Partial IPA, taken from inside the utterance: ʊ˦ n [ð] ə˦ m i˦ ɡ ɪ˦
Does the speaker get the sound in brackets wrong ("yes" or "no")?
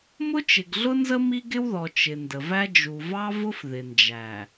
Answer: yes